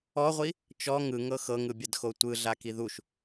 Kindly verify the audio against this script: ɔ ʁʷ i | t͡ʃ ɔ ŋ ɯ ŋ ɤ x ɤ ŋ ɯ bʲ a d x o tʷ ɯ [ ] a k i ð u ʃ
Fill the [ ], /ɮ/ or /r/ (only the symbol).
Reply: ɮ